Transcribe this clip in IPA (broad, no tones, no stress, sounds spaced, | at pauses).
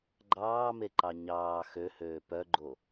ɡ͡ǃ ɑː m e ǃ ɑ ɲ ɑː x ø h øː p œ ɡ͡ǃ o